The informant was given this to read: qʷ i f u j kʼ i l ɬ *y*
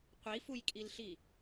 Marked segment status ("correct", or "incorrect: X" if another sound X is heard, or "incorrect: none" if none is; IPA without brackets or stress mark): incorrect: i